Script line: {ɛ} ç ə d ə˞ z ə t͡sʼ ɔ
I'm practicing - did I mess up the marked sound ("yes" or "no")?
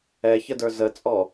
no